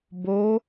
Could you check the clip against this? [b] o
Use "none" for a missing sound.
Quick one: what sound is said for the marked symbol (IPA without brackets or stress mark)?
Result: b